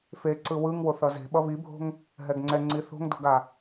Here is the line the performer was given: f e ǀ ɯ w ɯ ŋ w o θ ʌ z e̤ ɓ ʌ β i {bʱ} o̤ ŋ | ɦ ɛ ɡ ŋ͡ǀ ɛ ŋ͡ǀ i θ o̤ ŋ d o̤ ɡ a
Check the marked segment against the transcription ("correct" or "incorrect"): correct